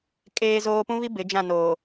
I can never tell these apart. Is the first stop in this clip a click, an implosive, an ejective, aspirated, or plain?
ejective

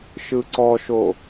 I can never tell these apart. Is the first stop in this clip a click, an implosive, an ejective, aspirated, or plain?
click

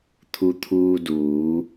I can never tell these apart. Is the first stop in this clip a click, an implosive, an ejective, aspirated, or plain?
aspirated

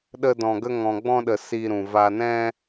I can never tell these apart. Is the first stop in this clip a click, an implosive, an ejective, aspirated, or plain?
implosive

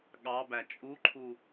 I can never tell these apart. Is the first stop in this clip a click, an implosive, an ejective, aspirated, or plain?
implosive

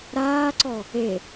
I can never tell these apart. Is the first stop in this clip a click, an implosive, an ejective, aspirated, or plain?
click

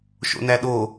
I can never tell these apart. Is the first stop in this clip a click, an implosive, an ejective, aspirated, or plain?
implosive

